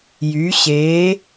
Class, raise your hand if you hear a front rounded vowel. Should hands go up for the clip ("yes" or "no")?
yes